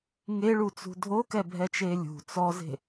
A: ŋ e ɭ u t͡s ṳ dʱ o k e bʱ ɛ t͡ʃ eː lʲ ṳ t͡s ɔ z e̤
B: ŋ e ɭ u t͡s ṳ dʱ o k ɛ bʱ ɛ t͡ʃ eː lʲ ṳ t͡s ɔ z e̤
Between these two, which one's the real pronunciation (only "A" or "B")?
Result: B